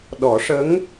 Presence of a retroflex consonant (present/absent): present